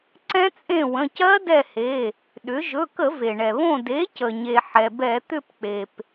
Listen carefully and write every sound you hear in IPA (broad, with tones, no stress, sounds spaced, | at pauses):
ǀ ɛ̃˦˥ t͡sʼ ẽ˦˨ w ə̃˩˧˩ c ɜ˦˥ d ɛ˦˨ h e˩˧˩ | ɗ ʏ˩˥ ʒ ɵ˩˧˩ k ə˧˩˧ v e˩ ɳ ɛ˩ β õ˦˨ d e˩˥ c ə˩ ɲ e˩ ħ ɛ˩ b ɛ˧˩˧ t̪ ʏ˦˨ p k͡p e˩ p